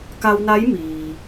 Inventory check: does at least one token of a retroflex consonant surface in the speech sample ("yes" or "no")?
no